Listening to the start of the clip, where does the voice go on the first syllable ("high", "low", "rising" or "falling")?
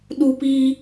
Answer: high